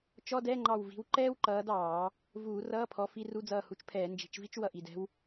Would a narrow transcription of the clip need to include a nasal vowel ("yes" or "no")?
no